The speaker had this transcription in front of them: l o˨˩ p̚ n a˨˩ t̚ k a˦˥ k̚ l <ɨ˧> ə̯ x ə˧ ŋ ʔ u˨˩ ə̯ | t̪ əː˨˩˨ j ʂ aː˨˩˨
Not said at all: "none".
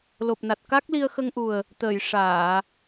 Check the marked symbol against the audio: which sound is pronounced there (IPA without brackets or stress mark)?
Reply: i˧